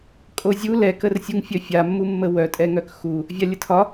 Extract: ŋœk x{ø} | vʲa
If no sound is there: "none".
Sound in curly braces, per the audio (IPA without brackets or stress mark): u